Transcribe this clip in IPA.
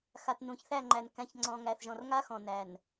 x a˨ t n ũ˨ ç θ æ˦˨ ŋ͡ǃ æ˨ n k æ̃˨ ç ŋ͡ǀ ɔ̃˨ ŋ æ˨ θ ʒ ɔ̃˨ r ŋ a˦ x ɔ̃˨ n æ˨ n

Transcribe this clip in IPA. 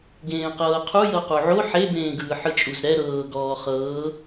ɡ ẽː q ɤː qʰ u j ɤ q u ʕ o ħ e b ẽː ɡ ɯː ħ ɯ t͡ʃʼ u z ɾ ɛ ɾ ɤː ɡ ɔː χ ɤː

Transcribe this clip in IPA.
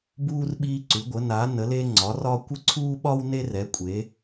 b uː˧ r ɓ iː˧ ǀ ʉ˩˧ ɡʷ ə˩˧ n a˩˧ n ə˩˧ l e˧ ŋ͡ǀ ɒ˩˧ r ɒ˧ kʷ ə˧ ǀʰ uː˧ ɓ ɒ˧ w n e˧ r ɛ˩˧ kʷʼ e˩˧

